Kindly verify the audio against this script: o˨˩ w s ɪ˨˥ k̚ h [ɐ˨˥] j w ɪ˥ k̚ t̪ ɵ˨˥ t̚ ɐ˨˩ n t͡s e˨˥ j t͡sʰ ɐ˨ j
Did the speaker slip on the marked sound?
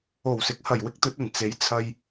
yes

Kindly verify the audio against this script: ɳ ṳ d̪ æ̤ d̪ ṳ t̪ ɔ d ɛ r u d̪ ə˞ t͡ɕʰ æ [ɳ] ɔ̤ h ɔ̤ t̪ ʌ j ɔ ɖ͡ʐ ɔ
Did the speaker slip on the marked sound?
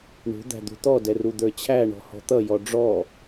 no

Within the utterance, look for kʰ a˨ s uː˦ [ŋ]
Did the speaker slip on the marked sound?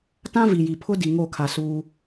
yes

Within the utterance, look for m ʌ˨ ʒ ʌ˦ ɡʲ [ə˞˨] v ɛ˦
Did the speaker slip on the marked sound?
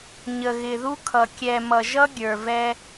no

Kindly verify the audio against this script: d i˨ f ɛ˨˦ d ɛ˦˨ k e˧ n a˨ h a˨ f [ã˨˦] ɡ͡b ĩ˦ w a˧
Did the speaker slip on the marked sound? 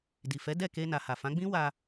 no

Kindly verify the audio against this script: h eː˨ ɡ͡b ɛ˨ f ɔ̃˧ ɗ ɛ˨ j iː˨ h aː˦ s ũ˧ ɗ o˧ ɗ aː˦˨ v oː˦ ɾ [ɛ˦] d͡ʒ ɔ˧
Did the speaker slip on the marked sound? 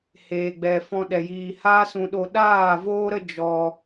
yes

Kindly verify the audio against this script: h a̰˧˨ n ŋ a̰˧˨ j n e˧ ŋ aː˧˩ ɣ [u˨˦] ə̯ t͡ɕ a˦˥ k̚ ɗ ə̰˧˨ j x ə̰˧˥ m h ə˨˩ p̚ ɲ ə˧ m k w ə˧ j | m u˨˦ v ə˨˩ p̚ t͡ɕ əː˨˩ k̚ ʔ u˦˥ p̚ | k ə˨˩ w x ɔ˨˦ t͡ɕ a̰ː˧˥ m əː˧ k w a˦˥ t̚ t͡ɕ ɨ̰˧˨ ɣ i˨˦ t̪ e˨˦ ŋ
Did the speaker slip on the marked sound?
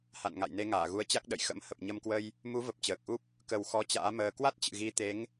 no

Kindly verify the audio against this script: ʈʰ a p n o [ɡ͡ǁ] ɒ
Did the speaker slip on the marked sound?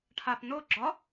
no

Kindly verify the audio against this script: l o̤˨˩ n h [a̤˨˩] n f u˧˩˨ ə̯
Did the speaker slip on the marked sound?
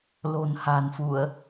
no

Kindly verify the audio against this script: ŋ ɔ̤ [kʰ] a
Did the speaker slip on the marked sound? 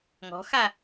yes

